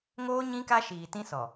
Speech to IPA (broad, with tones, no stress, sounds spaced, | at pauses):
ŋ oː˦ ɲ ĩ˦ k a˦ ʃ iː˨ t ĩ˦ s ɔ˨